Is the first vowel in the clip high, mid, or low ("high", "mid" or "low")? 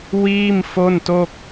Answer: high